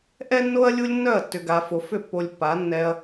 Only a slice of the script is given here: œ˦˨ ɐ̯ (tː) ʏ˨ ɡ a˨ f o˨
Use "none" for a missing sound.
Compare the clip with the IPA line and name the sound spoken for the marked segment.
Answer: tː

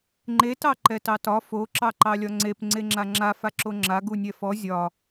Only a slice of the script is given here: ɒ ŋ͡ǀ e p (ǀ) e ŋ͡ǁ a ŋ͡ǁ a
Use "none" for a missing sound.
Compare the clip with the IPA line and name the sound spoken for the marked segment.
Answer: ŋ͡ǀ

